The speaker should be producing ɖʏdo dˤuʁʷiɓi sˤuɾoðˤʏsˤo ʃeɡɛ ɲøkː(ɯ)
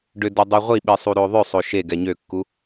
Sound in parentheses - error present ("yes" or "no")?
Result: yes